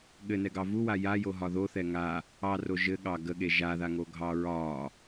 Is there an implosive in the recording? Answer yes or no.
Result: yes